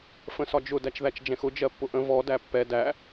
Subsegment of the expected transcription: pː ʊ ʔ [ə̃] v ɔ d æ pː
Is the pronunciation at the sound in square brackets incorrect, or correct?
correct